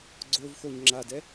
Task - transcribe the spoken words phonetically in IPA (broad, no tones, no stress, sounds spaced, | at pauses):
ɡ͡ǀ o v x o ɲ ŋ͡ǁ a d ɛ